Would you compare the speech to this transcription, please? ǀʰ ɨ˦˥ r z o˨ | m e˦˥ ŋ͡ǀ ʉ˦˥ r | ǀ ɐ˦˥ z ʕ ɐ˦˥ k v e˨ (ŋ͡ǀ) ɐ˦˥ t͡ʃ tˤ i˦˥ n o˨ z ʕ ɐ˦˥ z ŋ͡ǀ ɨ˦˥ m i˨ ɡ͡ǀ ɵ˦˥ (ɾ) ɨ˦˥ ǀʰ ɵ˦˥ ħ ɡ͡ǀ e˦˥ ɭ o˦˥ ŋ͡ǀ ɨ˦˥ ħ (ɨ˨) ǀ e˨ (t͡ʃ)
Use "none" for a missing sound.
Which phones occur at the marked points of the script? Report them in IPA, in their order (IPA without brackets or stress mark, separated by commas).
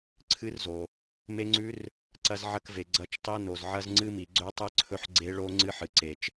ɡ͡ǀ, tˤ, ɨ˨, t͡ʃ